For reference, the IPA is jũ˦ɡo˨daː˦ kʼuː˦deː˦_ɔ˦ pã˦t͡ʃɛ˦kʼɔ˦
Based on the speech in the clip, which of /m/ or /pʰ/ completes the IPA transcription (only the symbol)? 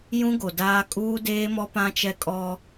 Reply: m